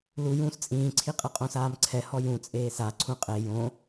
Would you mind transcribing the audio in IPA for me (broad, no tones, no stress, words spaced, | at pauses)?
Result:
lu jũːst͡sʼĩːǀʰiqʼɤ qʼõsaːmǀʰɛhɔ jũ t͡sʼeːsa ǀʰũqʼe jõ